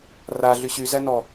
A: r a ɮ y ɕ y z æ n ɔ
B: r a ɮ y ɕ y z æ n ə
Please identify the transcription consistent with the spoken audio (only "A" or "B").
A